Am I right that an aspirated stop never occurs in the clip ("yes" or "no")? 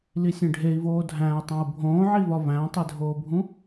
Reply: yes